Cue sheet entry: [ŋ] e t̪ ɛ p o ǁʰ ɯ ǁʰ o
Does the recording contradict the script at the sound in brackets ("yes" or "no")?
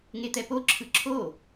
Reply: no